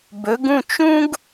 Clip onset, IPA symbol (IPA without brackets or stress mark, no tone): b